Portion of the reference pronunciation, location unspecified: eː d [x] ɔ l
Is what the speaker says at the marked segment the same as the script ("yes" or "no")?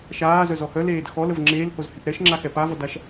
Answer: yes